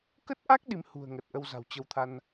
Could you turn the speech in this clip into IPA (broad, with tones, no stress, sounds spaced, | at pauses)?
k ə˦˥ t̚ ʔ a˦˥ k̚ ɗ i˨˦ m h ṳ˨˩ ə̯ ŋ ə˨˩ t̚ ʔ ə˧ w z a̤˨˩ w t͡ɕ ə˧ w t̪ʰ a˧ n